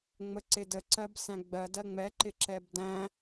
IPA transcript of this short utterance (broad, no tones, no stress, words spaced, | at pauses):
ŋ͡məǀɪ dəǀɜb sæ̃ɡ͡bɜdɜ ŋ͡mɛǃɪ ǁɛbdæ̃